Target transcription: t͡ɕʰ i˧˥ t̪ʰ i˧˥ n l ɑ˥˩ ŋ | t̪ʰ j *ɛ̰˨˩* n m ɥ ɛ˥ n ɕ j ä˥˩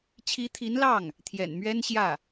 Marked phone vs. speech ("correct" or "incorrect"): correct